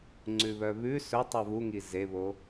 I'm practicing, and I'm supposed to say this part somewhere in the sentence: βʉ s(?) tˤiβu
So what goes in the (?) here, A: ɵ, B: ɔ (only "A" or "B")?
A